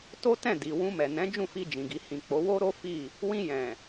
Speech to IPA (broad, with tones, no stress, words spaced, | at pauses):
to˦ tɛ̃˦˨di˨ wũ˧mɛ˨nɛ̃˨˦ d͡ʒũ˦˨fi˧d͡ʒĩ˨ɡi˨ hĩ˨k͡po˨˦ wo˦ɾo˦ fi˦˨ | wĩ˧jɛ̃˨